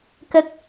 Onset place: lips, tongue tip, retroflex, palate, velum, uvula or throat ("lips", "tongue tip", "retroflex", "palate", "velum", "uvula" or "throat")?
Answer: velum